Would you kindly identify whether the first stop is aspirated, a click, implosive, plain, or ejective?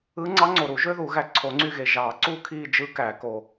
click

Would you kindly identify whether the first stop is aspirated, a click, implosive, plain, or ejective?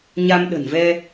implosive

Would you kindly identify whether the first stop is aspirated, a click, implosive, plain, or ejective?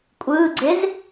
ejective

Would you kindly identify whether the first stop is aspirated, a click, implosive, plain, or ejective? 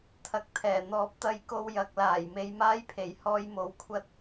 aspirated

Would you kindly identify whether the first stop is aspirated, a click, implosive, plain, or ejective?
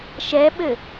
implosive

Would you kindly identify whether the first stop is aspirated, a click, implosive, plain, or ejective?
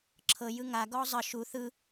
click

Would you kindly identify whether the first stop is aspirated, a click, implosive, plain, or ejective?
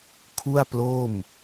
aspirated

